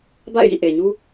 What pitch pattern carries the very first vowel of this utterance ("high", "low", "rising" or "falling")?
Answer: falling